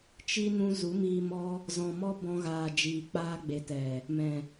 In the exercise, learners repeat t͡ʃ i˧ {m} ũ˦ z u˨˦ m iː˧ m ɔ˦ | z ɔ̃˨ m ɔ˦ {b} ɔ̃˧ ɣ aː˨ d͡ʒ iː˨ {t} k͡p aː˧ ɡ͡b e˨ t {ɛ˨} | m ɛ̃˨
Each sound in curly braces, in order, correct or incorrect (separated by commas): incorrect, correct, incorrect, correct